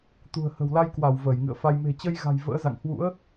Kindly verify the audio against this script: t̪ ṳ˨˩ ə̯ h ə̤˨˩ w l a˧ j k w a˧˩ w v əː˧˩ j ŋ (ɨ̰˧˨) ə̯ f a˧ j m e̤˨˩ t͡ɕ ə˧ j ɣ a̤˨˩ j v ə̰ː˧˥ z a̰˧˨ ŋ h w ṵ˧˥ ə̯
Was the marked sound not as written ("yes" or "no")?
no